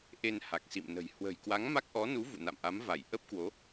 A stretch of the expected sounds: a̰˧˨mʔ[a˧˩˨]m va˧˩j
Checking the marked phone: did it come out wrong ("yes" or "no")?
yes